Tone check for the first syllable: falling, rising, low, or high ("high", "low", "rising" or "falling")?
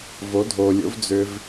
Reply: rising